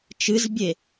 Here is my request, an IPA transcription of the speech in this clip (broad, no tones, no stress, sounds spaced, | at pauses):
t͡ʃ ɨ z bʲ e